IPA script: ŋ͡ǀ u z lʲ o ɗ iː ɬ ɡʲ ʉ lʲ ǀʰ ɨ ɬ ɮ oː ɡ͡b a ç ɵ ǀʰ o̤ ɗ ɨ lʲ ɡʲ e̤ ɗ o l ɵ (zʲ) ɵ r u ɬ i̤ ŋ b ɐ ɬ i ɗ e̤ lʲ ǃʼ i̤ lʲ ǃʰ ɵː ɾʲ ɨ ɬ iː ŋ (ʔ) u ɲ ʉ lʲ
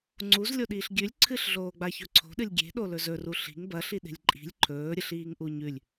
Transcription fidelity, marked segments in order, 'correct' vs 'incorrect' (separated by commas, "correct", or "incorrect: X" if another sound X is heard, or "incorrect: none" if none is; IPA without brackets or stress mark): incorrect: z, correct